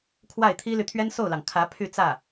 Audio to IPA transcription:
kʰ w a˥˩ ɪ̯ t̪ʰ i˥ l y˨ t̪ʰ ɥ ɛ˥ n s o˥˩ ʊ̯ l ɑ˩ ŋ kʰ ä˧˥ pʰ y˥˧ t͡s ä˥˩

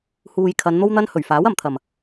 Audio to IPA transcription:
h uː˨ j kʰ ɐ˨˧ n n̪ o˥ w n̪ ɐ˥ n h ɵ˨˩ ɥ f aː˨˥ w ɐ˨ m t̪ʰ ɐ˨˩ m

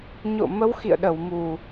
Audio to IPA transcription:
ɲ o̰˧˨ m ə˨˦ w x ḭ˧˨ ə̯ ɗ ə˧˩ w m u˨˩

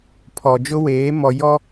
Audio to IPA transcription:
pʰ ɔ˨ d͡ʒ ʊ˦ w eː˨˦ m ɔ˨ j ɔ˦

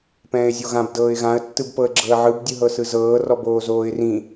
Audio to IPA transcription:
p ɛ̃ː ɪ̯ zʲ o ɣ ã b d ɤː ɪ̯ ɣ ã ə̯ tː ɯ b p ɤ ə̯ ɡ͡ǁ ɤ ə̯ ʕ ɯ b dʲ ɯ ɦ ɤ s ɯ z ɤː r ɔ b oː z oː ɪ̯ r ĩ

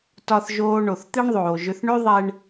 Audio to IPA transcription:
t ɒ˧ θ ʒ oː˧ ɳ o˨ θ t̪ e˦ ɳ ðˤ oː˨ ʒ ʏ˧ θ ɳ ø˦ ðˤ ɛ˧ ɳ

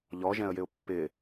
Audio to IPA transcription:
ʎ ɔ ʒ ɛ̃ ə̯ j ɪ ʊ̯ pː ɪ

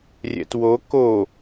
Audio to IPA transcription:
rʲ ɛ̰ t w o k o

